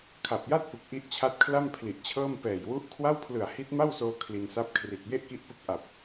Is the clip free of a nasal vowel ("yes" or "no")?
yes